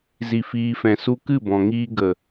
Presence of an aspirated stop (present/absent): absent